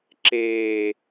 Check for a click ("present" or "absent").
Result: present